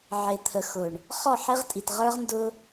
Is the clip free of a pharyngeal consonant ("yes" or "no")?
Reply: no